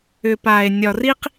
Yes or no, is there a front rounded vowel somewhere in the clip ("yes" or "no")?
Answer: yes